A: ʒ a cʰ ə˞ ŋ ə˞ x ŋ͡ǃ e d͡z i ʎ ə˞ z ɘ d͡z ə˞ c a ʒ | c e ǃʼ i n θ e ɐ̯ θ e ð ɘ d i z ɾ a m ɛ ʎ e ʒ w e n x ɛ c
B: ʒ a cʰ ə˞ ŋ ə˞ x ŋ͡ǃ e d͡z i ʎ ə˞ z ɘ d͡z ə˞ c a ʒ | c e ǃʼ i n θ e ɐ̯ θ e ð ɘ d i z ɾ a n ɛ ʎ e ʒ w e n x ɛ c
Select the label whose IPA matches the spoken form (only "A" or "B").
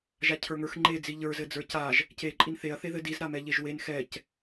A